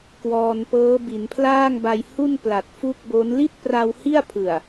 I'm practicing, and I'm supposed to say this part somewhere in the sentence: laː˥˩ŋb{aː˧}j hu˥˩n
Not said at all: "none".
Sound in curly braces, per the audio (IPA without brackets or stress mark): a˧